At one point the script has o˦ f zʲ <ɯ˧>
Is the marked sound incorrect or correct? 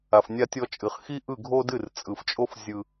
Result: correct